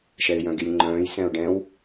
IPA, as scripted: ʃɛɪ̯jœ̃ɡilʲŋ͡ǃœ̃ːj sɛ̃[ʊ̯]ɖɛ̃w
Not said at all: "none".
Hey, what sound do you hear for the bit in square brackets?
ʊ̯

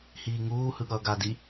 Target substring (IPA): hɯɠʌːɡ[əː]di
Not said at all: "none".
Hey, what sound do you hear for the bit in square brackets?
aː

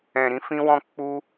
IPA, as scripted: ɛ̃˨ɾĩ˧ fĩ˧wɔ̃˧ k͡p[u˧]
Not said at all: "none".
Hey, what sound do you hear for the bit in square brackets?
u˦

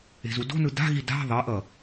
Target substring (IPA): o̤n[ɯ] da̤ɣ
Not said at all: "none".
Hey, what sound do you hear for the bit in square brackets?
ɯ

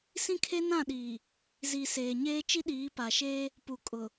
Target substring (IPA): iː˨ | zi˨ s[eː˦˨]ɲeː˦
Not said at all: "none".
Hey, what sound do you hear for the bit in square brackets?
eː˨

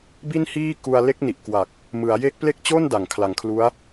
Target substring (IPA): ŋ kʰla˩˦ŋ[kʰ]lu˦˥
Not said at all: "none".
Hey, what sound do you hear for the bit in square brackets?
kʰ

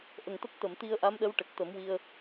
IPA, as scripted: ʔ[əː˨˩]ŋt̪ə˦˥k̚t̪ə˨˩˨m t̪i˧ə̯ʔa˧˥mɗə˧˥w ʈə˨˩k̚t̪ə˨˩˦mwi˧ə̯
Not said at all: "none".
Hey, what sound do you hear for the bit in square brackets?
ə˨˩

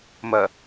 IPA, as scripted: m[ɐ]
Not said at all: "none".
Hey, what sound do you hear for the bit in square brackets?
ɐ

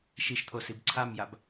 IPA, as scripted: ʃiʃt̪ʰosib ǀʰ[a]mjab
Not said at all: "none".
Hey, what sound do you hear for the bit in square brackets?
a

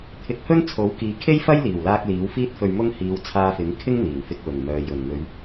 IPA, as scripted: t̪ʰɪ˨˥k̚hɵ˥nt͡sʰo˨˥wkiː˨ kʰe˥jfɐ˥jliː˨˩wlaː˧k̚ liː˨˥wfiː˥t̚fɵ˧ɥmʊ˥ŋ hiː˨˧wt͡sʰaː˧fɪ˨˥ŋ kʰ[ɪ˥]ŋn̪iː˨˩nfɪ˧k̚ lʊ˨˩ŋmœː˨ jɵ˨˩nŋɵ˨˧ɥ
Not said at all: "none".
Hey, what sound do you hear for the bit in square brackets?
ɪ˥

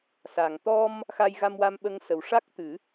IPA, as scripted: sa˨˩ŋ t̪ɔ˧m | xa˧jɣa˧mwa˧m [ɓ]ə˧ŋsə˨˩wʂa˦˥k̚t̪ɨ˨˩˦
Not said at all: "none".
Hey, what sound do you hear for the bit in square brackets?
ɓ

